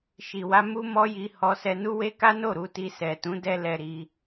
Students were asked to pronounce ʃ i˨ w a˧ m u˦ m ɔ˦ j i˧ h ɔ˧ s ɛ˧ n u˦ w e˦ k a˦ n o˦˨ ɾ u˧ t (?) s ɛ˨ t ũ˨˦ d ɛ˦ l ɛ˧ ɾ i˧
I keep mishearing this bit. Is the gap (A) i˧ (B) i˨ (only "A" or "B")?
A